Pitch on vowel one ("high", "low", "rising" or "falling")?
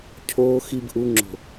low